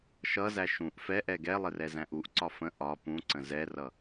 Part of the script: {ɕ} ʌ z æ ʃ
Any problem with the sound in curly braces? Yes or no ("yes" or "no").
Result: yes